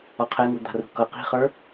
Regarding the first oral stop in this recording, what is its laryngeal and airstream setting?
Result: aspirated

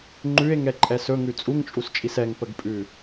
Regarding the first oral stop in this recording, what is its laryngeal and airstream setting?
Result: click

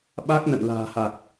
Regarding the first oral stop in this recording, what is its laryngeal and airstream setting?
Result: implosive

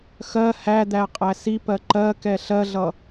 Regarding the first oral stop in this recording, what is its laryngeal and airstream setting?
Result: plain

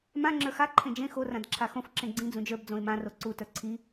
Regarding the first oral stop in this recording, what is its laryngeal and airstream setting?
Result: click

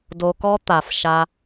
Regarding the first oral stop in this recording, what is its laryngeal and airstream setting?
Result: plain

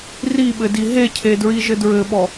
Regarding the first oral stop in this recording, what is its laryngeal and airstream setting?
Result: implosive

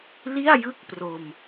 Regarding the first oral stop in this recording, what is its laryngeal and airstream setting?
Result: plain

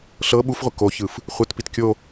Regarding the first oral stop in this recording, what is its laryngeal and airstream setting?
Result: implosive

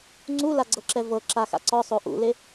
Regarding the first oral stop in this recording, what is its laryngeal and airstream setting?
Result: click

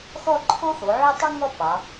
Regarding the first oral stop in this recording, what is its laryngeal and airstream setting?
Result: click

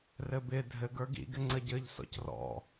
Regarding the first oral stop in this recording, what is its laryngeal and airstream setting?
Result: plain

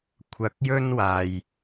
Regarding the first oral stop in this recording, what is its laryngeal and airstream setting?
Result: aspirated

